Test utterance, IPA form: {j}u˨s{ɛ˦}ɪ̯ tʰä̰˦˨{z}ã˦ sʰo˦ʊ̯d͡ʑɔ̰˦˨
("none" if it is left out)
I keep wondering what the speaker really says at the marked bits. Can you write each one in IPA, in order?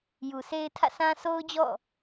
j, e˦, s

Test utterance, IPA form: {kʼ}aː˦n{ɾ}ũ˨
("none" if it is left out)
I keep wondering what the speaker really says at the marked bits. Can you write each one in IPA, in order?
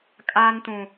kʼ, t

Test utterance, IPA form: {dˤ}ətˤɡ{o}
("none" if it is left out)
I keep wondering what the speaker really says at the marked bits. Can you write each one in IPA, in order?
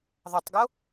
ðˤ, o

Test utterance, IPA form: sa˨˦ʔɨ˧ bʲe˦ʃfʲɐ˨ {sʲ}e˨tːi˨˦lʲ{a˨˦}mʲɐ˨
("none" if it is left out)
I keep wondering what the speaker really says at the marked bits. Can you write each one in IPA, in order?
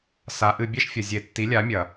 zʲ, a˨˦

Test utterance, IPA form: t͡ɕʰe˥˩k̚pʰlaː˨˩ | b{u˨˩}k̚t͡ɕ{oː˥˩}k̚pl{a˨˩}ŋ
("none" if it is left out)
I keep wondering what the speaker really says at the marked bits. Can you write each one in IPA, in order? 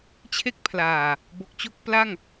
o˨˩, o˥˩, a˥˩

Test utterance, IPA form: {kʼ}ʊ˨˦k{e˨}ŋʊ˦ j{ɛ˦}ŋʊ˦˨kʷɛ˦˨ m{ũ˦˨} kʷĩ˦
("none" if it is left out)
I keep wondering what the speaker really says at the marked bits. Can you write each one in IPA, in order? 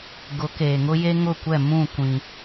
ɡ, eː˨, e˦, ũ˦˨

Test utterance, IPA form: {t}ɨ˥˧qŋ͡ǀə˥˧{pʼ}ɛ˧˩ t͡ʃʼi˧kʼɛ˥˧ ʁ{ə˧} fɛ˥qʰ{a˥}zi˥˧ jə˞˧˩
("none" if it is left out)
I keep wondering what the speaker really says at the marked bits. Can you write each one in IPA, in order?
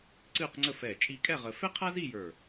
ǀ, f, ə˧, a˥

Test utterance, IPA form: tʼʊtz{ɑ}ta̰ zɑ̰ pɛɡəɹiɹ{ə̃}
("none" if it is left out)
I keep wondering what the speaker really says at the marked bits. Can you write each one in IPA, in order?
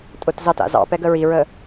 ɑ, ə

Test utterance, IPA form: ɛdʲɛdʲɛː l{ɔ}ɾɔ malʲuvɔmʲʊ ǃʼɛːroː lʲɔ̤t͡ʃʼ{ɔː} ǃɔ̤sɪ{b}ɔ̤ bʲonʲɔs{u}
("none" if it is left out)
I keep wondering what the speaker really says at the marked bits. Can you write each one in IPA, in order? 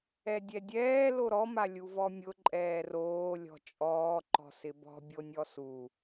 o, ɔː, b, u

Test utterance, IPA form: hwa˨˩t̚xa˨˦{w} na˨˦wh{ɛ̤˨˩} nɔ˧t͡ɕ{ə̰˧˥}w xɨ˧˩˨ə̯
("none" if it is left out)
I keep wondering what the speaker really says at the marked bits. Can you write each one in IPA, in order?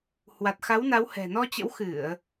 w, ɛ̤˨˩, ə̰˧˥

